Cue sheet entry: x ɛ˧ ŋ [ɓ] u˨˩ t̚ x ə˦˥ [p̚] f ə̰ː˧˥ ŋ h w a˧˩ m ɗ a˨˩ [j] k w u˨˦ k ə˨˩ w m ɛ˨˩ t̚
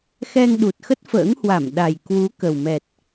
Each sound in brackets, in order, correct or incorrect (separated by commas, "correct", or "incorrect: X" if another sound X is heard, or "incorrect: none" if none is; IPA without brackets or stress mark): incorrect: ɗ, incorrect: t̚, correct